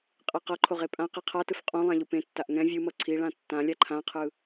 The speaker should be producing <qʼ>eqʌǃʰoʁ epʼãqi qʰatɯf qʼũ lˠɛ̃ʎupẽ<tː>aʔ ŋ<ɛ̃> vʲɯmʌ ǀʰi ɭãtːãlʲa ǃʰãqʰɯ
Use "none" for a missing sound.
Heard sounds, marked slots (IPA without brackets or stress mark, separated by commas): qʼ, tː, ɛ̃